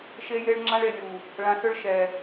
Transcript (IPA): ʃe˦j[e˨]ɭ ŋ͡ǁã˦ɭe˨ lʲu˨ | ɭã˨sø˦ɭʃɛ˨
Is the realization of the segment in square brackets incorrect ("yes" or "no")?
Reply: yes